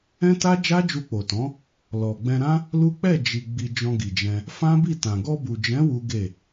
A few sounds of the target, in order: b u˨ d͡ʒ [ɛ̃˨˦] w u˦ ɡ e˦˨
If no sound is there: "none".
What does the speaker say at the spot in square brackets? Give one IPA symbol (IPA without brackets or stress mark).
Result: ɛ̃˨˦